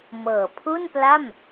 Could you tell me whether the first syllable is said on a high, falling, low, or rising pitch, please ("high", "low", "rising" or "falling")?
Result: low